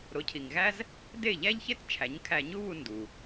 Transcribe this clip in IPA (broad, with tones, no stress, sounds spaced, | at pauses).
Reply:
ɾ o˩˥ cʰ i˩ ŋ ɣ æ˥ z | d e˥˩ ʎ æ˥ ʎ ç e˥ t t͡ʃʰ æ˩˥ ɲ kʰ æ˧ ɲ u˥ β u˧ n d u˩